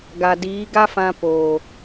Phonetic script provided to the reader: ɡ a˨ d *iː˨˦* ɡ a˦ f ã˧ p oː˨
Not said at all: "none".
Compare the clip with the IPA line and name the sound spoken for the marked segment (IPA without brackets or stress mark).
iː˨˦